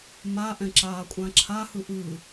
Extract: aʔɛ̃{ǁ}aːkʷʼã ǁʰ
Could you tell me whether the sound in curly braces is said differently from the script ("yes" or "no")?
no